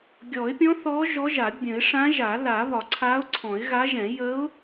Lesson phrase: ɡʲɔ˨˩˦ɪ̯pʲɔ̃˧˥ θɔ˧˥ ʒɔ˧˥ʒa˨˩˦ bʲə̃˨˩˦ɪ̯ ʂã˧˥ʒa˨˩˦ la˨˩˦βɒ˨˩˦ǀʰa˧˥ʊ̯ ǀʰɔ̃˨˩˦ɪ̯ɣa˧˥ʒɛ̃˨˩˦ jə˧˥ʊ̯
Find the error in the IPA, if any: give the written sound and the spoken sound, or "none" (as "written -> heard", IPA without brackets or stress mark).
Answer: none